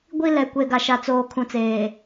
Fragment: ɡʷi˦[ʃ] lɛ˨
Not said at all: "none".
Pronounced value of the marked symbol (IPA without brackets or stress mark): none